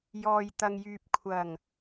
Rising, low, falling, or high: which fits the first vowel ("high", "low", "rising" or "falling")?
low